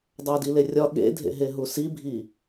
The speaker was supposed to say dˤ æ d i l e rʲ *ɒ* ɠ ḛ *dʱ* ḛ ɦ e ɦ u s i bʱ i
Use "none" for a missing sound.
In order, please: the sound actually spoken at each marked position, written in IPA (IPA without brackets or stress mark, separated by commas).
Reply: ɒ, dʱ